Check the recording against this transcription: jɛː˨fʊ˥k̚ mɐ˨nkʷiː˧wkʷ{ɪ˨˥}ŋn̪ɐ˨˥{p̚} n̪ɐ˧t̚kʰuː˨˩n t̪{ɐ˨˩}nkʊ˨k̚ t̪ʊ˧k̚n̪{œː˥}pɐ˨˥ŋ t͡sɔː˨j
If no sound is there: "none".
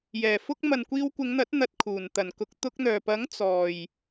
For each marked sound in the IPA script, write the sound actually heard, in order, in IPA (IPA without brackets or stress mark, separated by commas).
ɪ˨˧, t̚, ɐ˨˩, œː˨˩